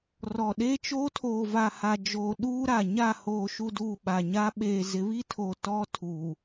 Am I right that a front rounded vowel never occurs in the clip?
yes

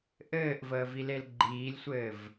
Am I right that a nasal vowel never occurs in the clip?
yes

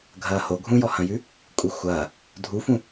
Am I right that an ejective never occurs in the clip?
no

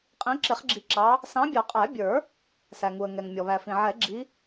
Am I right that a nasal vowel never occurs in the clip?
no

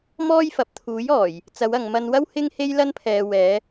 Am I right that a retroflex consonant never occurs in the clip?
yes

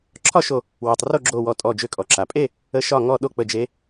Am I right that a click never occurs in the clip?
no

